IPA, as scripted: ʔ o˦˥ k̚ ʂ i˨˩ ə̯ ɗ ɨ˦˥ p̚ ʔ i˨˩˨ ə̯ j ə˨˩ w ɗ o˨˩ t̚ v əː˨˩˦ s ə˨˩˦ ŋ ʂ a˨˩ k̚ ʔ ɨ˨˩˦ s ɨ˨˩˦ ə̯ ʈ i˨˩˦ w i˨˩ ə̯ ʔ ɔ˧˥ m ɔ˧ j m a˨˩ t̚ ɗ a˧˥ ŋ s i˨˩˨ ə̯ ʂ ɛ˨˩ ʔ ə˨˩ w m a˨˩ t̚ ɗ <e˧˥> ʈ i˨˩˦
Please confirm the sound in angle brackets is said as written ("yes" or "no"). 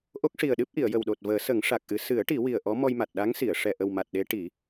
yes